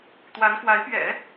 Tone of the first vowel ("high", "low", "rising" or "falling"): rising